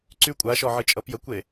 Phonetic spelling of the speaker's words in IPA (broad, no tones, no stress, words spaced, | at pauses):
ǀy kʷʼaʃɔʕɨt͡ʃʼʌ pjəkʷe